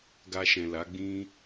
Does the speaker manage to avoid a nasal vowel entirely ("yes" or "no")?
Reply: no